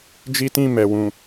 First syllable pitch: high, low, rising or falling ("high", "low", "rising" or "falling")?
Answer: high